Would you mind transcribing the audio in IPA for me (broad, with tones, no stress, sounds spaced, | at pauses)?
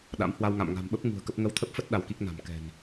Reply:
ɗ a̰˧˥ m h w a˧ w ŋ a̰˧˨ m ŋ a̤˨˩ m ɓ ə˦˥ p̚ ŋ ṳ˨˩ ə̯ k ə˦˥ p̚ ŋ ə˧ w t̪ʰ ə˦˥ p̚ f ə˦˥ t̚ ɗ a˧ w k i˦˥ k̚ n a̤˨˩ m k ɛ̤˨˩ n